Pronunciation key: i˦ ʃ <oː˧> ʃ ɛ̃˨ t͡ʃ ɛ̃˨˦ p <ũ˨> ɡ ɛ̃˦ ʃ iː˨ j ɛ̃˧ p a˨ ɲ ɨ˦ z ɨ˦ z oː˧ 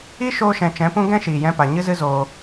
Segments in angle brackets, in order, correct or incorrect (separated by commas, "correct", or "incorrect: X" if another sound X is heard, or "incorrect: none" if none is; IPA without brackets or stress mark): correct, incorrect: ũ˦